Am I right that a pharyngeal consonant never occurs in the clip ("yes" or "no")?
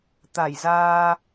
yes